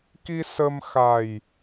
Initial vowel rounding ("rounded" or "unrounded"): unrounded